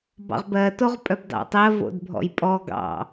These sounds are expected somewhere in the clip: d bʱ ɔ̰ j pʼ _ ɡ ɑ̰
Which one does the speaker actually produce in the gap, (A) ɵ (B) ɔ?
B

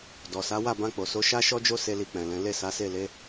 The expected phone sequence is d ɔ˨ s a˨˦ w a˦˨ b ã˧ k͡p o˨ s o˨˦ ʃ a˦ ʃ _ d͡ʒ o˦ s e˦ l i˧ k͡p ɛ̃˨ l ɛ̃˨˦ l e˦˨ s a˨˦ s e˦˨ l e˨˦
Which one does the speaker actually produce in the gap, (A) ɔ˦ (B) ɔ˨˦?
A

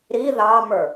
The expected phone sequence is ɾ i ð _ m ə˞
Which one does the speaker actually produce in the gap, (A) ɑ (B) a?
A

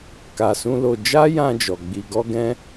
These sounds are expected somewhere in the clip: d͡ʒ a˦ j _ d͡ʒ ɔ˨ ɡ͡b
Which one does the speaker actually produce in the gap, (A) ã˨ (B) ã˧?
B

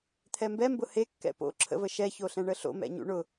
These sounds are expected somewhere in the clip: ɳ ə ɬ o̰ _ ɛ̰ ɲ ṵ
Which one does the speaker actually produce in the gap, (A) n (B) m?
B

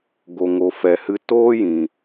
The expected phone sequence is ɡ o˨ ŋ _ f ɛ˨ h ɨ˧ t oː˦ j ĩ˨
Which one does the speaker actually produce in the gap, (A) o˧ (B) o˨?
B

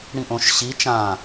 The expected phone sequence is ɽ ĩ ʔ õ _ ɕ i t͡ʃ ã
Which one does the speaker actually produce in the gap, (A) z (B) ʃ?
B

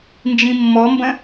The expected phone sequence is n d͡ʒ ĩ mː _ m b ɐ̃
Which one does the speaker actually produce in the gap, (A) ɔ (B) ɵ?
A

